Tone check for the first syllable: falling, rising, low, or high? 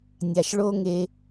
low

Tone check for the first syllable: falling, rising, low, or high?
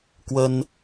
high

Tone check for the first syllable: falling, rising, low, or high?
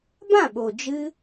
falling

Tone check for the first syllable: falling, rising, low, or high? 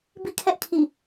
falling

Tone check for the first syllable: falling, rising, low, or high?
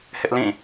high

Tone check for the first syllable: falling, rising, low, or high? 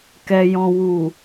low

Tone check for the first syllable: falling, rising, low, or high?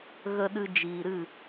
low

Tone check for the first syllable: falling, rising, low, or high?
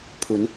rising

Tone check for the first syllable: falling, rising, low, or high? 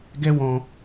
high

